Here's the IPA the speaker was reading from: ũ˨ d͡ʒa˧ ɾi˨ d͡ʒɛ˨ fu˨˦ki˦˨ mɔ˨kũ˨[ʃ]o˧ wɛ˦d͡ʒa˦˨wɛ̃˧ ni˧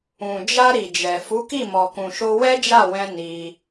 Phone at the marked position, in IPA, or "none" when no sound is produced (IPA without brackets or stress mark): ʃ